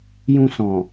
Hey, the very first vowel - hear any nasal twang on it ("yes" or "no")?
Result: yes